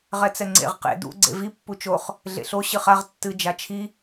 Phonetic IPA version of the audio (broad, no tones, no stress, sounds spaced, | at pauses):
ʁ ɛ t͡s ɛ ŋ͡ǀ ḛ ʁ q ḛ d ṵ ɡ͡ǀ ḛ v i pː u t͡ʃ o χ | ɮ ḛ ɬ o ɕ ɨ χ a ʁ tː ɨ d͡ʒ a t͡ʃʰ i